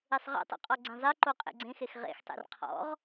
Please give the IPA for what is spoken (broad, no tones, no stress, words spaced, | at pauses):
esˤʁɛ̰tˤṵ qʼɔɡ͡ǀẽzˤeǃo qʼḛɡ͡ǀẽxex ʁḛxtˤḛr qʰɔ̰ʁ